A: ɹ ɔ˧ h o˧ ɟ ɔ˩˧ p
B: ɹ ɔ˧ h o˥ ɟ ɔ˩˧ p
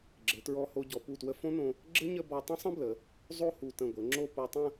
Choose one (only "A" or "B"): A